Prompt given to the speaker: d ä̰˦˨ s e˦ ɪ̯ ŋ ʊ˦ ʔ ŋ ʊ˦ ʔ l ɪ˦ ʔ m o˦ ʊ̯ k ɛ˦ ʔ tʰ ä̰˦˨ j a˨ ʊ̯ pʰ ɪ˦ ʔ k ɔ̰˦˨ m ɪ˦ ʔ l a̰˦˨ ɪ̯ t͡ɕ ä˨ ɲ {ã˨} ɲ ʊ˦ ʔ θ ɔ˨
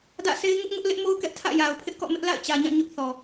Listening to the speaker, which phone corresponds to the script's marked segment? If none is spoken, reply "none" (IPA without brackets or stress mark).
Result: ã˦˨